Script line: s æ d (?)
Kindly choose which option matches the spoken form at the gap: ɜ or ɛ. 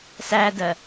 ɜ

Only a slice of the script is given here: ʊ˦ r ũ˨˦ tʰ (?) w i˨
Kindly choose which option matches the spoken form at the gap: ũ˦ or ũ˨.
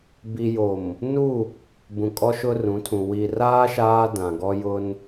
ũ˨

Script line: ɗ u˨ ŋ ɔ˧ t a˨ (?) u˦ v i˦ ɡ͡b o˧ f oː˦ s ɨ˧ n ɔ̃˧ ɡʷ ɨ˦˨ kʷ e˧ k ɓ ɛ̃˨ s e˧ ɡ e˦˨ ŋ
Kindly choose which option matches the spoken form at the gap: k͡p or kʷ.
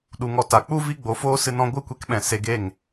k͡p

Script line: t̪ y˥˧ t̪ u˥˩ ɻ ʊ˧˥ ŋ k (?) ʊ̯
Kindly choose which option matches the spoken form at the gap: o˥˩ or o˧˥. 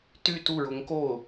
o˥˩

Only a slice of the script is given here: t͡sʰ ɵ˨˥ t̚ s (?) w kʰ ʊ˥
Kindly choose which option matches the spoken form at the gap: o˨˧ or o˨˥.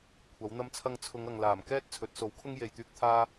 o˨˥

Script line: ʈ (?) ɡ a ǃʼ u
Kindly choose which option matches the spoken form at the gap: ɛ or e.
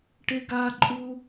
e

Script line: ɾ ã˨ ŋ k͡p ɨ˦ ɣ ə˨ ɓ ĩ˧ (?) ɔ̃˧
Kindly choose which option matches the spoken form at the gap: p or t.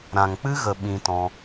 t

